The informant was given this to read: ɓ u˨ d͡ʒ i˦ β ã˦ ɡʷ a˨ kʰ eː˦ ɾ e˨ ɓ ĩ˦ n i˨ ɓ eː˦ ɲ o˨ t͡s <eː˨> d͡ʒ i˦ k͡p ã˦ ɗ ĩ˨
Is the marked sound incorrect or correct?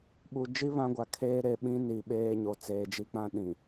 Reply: correct